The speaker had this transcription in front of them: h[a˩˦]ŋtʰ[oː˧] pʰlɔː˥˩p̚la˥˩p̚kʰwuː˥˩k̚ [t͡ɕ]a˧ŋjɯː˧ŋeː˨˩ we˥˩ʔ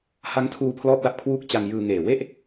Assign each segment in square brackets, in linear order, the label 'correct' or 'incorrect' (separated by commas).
incorrect, incorrect, correct